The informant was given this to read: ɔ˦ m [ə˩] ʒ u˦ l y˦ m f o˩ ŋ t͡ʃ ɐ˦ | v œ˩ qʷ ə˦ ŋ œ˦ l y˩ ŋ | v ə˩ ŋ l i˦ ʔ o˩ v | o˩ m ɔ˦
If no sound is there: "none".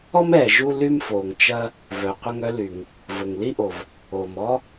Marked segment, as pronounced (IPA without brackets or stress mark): ɛ˩